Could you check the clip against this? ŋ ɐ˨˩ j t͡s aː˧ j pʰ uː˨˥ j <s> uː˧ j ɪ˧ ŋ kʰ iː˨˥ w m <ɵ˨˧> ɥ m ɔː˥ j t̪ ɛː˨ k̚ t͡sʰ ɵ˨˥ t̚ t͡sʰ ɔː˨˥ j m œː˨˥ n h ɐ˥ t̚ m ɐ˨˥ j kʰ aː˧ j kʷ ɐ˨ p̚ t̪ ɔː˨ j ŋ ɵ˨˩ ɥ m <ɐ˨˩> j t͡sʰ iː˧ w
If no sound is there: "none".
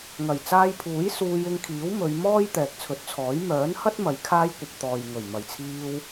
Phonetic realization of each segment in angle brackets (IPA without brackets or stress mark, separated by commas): s, ɵ˨˧, ɐ˨˩